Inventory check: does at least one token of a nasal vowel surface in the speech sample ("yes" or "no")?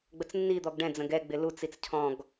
yes